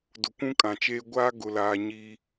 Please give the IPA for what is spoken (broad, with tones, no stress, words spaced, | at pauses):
dʊ˨kʷũ˦kʼã˨t͡ʃeː˦ ɡʷa˦ ɡʊ˦laː˦ ɲiː˦